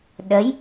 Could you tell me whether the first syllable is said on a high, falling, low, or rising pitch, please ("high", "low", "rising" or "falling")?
rising